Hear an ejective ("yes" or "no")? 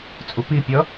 yes